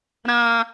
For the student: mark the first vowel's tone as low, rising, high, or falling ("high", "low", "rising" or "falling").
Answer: high